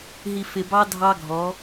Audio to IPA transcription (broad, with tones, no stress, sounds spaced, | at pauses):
ɦ i˨ f ɪ˨ b ɑ˦ dʱ ɑ˦ ɡʱ ɔ˨˦